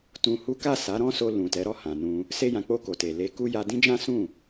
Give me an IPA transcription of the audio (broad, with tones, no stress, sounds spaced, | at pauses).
t ũ˧ h u˦ k a˦˨ s a˨˦ ɾ ɔ̃˦ s o˧ l ũ˨ t ɛ˨˦ ɾ ɔ˦˨ h ã˨ n ũ˧ | s e˧ j ã˨ k͡p o˧ k o˨ t e˨ l e˧ k u˦ j a˧ d ĩ˦ d͡ʒ ã˦ s ũ˦˨